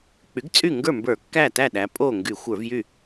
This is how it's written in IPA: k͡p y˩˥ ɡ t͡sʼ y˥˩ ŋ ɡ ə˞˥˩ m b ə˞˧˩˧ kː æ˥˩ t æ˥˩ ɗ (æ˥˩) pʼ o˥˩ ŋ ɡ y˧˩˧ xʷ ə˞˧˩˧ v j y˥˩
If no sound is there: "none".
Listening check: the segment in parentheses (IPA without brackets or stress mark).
æ˩˧